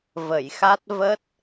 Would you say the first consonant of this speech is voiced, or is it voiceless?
voiced